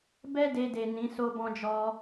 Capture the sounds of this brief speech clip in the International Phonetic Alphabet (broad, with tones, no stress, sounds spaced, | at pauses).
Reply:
b ɛ˦ d e˧ d e˨ n ĩ˨˦ s o˦ b ɔ̃˦ d͡ʒ ɔ˦